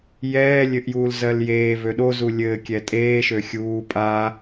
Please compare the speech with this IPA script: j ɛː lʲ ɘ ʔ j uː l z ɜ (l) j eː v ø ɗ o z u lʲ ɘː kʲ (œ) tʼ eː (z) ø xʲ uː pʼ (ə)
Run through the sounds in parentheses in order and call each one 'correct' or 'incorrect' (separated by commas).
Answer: correct, incorrect, incorrect, incorrect